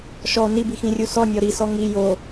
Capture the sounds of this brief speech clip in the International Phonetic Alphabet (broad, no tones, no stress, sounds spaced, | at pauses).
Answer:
ʃ ɔ n i b i x ĩ rʲ u s ɔ nʲ ɔ ɾ i s ɔ ŋ i j o